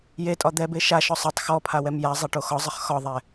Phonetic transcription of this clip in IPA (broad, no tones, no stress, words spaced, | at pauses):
jetʼɒ d̪ɛbe ʃaʃɔ sˤatˤ xɔpʰa wɛmjazˤa ʈoxɒzˤəχ xɒðˤɛ